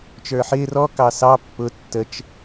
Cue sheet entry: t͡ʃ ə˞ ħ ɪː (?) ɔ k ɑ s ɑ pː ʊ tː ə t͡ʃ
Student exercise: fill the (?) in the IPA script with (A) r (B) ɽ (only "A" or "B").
A